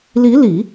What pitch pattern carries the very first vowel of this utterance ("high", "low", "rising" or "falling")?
rising